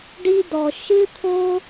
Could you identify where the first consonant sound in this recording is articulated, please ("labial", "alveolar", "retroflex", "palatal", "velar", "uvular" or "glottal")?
retroflex